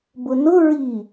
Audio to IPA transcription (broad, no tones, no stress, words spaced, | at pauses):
bʊnʊ ɹi